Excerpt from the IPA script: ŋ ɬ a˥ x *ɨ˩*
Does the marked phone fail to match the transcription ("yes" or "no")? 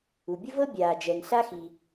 yes